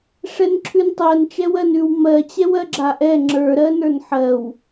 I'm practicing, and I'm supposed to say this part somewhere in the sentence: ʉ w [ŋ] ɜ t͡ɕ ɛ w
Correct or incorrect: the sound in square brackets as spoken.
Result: incorrect: m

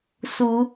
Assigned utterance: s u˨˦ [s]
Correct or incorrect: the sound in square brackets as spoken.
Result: incorrect: none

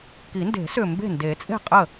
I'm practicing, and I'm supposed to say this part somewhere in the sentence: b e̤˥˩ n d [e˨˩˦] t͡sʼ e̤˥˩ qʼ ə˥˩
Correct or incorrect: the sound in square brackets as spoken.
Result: correct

